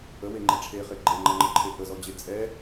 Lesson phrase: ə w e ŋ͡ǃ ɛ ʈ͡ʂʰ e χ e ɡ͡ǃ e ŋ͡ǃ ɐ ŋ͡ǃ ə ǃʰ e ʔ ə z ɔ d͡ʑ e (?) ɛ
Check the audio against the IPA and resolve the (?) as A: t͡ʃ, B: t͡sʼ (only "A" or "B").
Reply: B